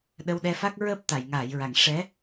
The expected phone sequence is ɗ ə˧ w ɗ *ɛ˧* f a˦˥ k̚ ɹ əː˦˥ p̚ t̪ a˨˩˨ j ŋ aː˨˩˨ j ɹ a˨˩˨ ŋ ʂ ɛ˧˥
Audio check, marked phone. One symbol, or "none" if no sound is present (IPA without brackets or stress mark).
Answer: ɛ˧